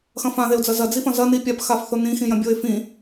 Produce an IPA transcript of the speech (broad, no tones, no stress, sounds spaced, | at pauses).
x ɐ̃ f ã ð e ʊ̯ d͡z ɐ z ɐ d͡z i f ɐ̃ z ɐ n i pʲ a p x a f θ o n ĩ x ĩ j ɐ̃ bʲ o ɪ̯ f ĩ